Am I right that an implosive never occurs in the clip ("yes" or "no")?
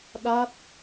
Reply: no